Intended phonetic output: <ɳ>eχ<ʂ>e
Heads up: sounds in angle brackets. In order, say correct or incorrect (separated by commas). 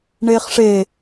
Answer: correct, correct